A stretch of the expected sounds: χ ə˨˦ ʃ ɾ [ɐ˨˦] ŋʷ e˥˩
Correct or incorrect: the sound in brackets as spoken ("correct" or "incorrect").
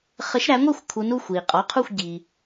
incorrect